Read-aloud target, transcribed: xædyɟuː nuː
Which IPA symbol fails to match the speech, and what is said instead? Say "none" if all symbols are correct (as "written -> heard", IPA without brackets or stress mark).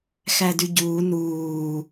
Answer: none